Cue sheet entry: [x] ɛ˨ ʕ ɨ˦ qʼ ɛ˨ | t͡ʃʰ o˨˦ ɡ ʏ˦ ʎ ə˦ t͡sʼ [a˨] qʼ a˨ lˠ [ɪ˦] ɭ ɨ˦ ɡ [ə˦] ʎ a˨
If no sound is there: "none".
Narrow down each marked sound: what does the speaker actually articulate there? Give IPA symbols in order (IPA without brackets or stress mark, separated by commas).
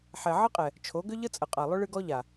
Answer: ħ, ə˨, ʏ˦, ɔ˦